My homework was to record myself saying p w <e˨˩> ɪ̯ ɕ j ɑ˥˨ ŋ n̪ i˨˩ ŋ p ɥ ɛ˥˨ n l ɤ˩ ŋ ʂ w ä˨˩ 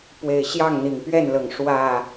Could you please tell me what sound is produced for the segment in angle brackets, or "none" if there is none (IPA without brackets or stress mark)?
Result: e˨˩